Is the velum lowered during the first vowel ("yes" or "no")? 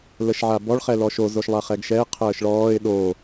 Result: no